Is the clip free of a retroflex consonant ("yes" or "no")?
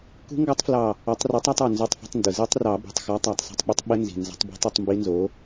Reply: yes